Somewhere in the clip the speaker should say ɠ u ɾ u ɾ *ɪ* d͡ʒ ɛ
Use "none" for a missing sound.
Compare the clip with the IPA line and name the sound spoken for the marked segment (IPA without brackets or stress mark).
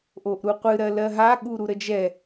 ə